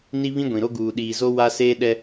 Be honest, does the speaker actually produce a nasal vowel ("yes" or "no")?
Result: yes